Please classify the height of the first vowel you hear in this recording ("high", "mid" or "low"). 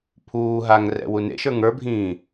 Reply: high